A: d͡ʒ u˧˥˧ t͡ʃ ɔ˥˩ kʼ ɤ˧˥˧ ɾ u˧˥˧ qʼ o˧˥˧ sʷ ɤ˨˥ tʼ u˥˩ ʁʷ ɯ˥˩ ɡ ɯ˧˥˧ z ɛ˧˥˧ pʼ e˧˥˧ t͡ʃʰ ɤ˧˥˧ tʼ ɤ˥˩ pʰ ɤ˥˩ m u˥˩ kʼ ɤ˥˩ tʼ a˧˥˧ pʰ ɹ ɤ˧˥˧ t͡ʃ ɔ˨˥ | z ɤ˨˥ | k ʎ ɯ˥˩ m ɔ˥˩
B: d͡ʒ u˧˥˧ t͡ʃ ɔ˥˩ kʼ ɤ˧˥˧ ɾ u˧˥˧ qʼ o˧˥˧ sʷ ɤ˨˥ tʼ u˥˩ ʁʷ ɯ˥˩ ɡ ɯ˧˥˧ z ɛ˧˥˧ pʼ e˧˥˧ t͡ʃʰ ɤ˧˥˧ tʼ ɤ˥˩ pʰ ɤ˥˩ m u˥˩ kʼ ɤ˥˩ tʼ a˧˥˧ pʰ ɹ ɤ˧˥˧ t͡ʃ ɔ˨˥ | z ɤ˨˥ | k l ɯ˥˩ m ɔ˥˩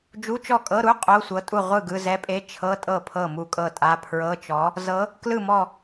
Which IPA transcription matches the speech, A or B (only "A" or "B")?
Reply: B